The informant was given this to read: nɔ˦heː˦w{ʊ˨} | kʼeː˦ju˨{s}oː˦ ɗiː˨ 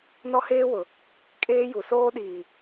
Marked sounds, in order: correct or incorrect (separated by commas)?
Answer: correct, correct